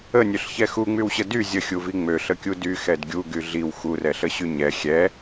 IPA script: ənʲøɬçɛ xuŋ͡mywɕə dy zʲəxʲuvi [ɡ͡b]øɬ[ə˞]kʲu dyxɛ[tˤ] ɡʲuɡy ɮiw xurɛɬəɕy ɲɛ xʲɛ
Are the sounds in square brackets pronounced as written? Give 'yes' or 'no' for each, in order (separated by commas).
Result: no, no, no